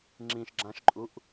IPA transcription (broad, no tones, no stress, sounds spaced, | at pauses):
ŋ͡ǁ ĩ ʃ ɡ͡ǁ ã ʃ ǃʼ u ʔ